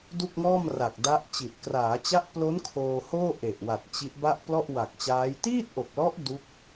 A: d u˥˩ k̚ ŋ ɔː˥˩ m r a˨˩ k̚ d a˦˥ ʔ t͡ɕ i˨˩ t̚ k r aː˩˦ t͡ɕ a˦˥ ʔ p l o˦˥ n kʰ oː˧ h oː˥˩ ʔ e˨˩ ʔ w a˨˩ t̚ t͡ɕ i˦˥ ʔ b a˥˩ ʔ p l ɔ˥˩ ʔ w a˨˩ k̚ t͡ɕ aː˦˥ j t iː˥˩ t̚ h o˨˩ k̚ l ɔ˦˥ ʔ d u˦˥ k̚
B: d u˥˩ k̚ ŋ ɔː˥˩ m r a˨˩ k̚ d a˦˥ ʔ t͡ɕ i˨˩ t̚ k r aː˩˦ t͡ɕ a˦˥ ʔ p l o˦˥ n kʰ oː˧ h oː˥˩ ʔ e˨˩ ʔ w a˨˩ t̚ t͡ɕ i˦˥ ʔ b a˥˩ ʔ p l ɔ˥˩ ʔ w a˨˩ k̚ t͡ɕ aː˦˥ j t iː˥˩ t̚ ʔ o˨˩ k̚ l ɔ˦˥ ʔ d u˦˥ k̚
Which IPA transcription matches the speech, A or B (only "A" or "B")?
B